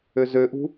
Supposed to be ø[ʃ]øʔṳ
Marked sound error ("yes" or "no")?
yes